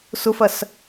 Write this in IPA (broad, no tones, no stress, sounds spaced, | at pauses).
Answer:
s ʊ f ɐ s